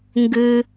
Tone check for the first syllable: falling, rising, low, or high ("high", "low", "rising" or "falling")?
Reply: low